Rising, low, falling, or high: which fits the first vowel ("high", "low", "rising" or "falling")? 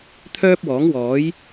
high